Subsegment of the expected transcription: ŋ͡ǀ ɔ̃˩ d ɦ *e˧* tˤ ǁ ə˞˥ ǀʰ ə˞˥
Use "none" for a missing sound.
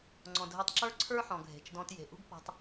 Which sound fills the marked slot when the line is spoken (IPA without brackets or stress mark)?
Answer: e˧